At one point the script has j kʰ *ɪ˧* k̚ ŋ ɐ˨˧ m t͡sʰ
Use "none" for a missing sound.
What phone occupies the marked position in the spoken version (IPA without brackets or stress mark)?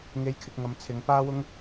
ɪ˨